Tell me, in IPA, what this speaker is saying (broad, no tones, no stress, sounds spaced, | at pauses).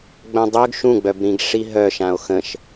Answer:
ɡ͡b œ̃ dˤ ø ɡ ʃ ũ ɡ͡b œ b ɾ ĩ ɡ ʂ i ɦ œ ʃ ã o̯ x ə̃ ʃ